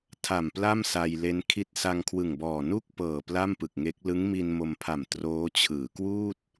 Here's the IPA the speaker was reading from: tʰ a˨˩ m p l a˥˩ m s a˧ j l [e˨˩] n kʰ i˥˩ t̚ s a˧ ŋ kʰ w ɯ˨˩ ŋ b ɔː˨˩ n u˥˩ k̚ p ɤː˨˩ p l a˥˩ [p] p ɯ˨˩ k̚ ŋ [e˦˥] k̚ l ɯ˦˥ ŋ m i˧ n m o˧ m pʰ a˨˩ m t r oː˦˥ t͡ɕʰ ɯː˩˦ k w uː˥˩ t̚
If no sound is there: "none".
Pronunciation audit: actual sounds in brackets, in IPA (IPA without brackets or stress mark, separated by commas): e˦˥, m, e˦˥